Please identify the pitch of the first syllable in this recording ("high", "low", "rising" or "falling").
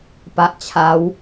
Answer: low